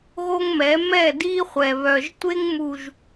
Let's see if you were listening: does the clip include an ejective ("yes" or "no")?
no